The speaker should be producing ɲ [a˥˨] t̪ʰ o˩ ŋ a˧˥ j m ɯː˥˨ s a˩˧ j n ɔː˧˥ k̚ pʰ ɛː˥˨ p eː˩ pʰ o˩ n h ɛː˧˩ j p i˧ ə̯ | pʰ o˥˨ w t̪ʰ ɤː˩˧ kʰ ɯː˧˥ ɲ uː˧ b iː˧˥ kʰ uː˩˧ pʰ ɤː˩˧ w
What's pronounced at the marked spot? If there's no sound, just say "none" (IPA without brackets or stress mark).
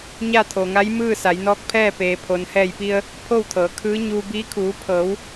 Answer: a˥˨